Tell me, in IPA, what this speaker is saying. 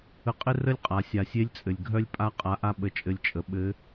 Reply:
ə˧ qʼ ɘ˥ r ə˥ lʲ qʼ a˩˧ sʲ a˩ sʲ e˧˥ lʲ t͡sʼ ɘ˩ lʲ ɡʱ œ˥ lʲ pʼ a˥ qʼ a˧˥ ʔ a˥ ɓ ə˧˥ t͡ʃʼ ɘ˧ lʲ t͡ʃʼ ə˩˧ ɓ ɘ˧˥

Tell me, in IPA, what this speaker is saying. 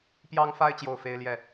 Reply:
p j ɑ˦ ŋ f a˦ ɪ̯ t͡ɕ j o˥˨ ʊ̯ f e˦ ɪ̯ l j ɛ˥˨

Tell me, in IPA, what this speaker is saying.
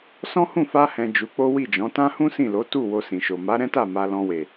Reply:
s ɔ̃˦ h ũ˦˨ f a˧ h ɛ̃˨ d͡ʒ u˨˦ k͡p o˦ w i˦˨ d͡ʒ ɔ̃˨˦ t ã˦ h ũ˦ s ĩ˦˨ l o˨˦ t u˦˨ w o˧ s ĩ˨ ʃ o˨ m a˨˦ ɾ ɛ̃˦ t a˦˨ m a˧ l ɔ̃˧ w e˨

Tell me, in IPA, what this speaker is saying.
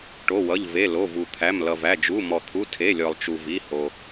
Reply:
ʈ o˩˧˩ w ʌ˩˧˩ ʎ v e˩˧˩ l o˩˧˩ v u˩ t̪ʰ æ˩˧˩ m l ʌ˩ v æ˩˧˩ d͡ʒ u˩˧˩ m ɔ˩ t̪ʰ u˩˧˩ tʰ e˩˧˩ lʲ ɔ˩ lˠ t͡ʃ u˩ v i˩˧˩ h o˩

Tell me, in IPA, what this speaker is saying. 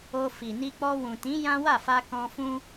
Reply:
o˧ f i˨ n i˧ k͡p ɔ˧ w ũ˨ t ĩ˨˦ j ã˦ w a˦˨ f a˧ k ɔ̃˧ f ũ˦

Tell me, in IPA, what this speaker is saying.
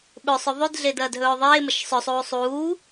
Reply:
ɓ ɵ sˤ ɵ ðˤ ʉ d ɮ eː d ɐː d ɦ ɵː ðˤ eː m ɐ ʃ sˤ ɵ sˤ uː sˤ uː

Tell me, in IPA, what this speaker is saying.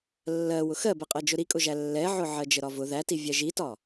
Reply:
lː ɜ w ʊ x ɜ b ɛ qʼ ɜ d͡ʒ ʊ ɾ i kʼ ʊ ʒ æ lː ɛ ʕ ʊ ʕ ɜ d͡ʒ ə ɾ ɒ v ʊ ð æ t i vʲ ɛ ʒ i t ɒ

